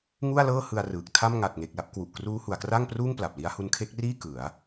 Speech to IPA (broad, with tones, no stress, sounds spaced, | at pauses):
ŋ u˥˩ a̯ l ɤː˥˩ h ɯ˧ a̯ r ɯː˨˩ k̚ tʰ a˥˩ m ŋ a˨˩ t̚ ŋ e˨˩ k̚ l a˦˥ p̚ k w u˨˩ ʔ k r uː˦˥ h u˩˦ a̯ k r a˥˩ ŋ p r uː˥˩ ŋ p l a˨˩ p̚ l i˦˥ a̯ h u˧ n kʰ e˦˥ k̚ r iː˥˩ k ɯ˩˦ a̯